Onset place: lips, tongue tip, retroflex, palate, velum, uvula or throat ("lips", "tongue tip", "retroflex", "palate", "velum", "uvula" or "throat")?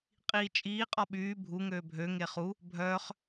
uvula